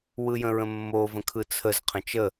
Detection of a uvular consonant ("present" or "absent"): present